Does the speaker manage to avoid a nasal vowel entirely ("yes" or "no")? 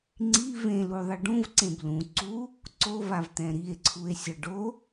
no